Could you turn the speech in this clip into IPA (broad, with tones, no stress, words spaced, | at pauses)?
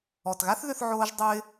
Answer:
ɔ˨tɣa˦θðʏ˧θ ʕoː˦ʒdˤo˦ɪ̯